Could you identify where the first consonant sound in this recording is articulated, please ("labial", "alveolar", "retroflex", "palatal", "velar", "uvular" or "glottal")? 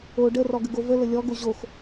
retroflex